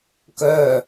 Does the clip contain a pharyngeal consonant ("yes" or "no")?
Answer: no